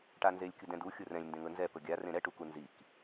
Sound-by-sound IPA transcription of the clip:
ʈ a n z e lʲ kʲ ʊ d ɛ̃ d u xʲ ʊ r ɛ̃ lʲ n d ẽ ŋ ɵ n z ɛ p ɵ ɡʲ a r ẽ ɾ ɛ ʈ u k u n z i k

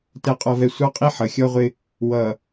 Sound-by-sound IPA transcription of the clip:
t ɛ˨ qʼ ɔ˨ v ɛ˨ sʷ ɑ˦ qʼ i˦ ħ ʌ˨ xʲ ɔ˦ ʁʷ ɪ˦ | w ʌ˨

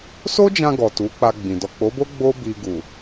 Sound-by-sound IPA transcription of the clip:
s o˦ d͡ʒ ã˧ ɡ ɔ˨ t u˨˦ k͡p a˧ ɡ͡b ĩ˨ d ɔ˨ k͡p o˨˦ b o˦ ɡ͡b o˦ b i˧ ɡ u˨

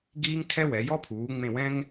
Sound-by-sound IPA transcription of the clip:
ɡ iː˥ ŋ tʰ ɛ˥ w ɛ˩˥ j ɔ˥ pʰ uː˩˥ ŋ͡m ẽ˦˨ w ɛ̃˥ ŋ

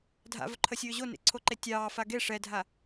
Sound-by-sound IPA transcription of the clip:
dʱ a̰ v ɵ ǃʰ ə sʲ ɵː ʑ o n ḛ ǀʰ o ǃ e tʲ ɑː f a ɡ e ʂ ɛ dʱ a

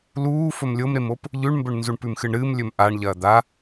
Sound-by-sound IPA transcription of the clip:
l uː f ɵ m lʲ o m ɾ e m o p | ʎ ʉ ɳ m b ɵ ɳ n z u ɳ p ʉ m x ɨ ɳ ɾ ɨː m lʲ ɵ m ʔ a ɳ ʎ ɐː d̪ a

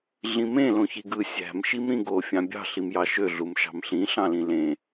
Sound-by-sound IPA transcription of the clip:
ɮ ĩ m ẽ l õ ç i ɡ ɯ sʲ æ̤ m ʃ i m ɾ ĩ ɡ o fʲ ɑ̃ bʲ ɑ̤ ɬ i m j ɑ ʃ ø ɮ u m ʃ ɑ̤ m ɬ ĩ ɬ ɑ̃ l ĩ l ẽ

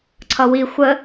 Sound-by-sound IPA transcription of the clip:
ǀʰ ʌ w i xʷ ə

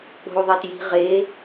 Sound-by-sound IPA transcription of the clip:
k͡p o̤ u̯ ðˤ e t j i̤ ʁ e

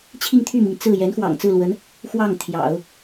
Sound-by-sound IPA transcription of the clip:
t͡ɕʰ i˥˧ ŋ t̪ʰ y˥˩ m i˩ ŋ t͡s ɹ̩˥˩ j ɛ˧˥ n x w ɑ̰˨˩ ŋ t͡s ɹ̩˥˩ l w ə˧˥ n | x w ɑ˥˩ ŋ t̪ʰ j ɑ̰˨˩˦ ʊ̯

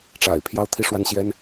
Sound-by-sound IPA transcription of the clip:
ʈ͡ʂ a̰˨˩ ɪ̯ pʰ j ɑ˥ ʊ̯ t̪ʰ i˥˧ ʂ w a˥˩ n ɕ j ɛ˥ n

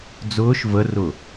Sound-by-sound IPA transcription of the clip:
d͡z ʊː ʃ v ə r ʊ

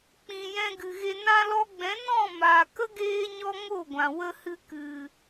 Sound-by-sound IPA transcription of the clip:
k͡p ĩ˨ j ɛ̃˧ ɡ ɨ˨ ɣ e˧ n ã˧ l ɔ˧ ɡ͡b ɛ̃˨˦ n ɔ̃˦˨ m aː˨ k ə˦ ɡ eː˦ ɲ ɔ˦ ŋ o˦˨ ɡʷ ã˨ w ə˧ h ɨ˧ k ɨ˨

